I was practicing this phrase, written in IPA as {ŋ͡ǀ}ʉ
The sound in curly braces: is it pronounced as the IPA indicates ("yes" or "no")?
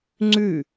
yes